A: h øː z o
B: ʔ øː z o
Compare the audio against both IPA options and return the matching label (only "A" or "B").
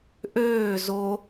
B